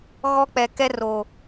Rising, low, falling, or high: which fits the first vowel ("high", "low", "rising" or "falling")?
high